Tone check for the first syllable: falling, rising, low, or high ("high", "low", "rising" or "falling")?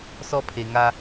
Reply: high